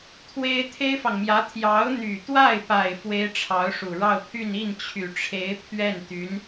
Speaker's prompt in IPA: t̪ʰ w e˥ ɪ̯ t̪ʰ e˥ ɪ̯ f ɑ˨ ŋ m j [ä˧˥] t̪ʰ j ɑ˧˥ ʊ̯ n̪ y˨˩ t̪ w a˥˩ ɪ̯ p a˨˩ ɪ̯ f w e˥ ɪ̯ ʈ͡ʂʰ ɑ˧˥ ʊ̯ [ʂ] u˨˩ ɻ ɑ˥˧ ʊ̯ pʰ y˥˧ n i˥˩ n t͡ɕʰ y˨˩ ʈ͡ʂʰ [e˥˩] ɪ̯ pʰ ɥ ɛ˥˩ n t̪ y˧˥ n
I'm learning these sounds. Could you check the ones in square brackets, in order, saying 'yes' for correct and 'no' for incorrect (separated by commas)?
yes, yes, no